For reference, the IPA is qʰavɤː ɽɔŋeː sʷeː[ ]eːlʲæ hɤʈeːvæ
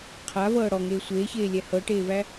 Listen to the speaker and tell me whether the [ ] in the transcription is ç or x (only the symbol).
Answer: ç